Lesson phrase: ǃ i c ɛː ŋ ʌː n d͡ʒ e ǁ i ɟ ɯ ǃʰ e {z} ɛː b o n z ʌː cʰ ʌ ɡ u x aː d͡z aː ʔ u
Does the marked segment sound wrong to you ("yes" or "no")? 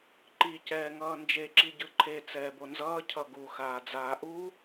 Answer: yes